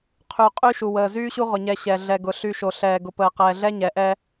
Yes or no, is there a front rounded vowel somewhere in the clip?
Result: yes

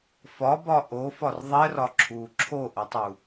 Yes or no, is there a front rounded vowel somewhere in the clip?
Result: no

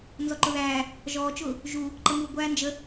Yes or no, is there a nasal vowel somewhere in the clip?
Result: no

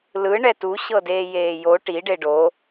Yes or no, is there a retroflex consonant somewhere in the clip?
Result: yes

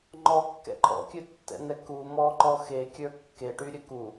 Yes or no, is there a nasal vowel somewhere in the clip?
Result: no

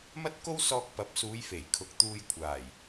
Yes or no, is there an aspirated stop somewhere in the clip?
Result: yes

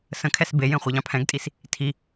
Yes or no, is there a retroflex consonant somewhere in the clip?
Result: no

